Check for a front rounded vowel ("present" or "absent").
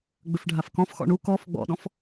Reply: present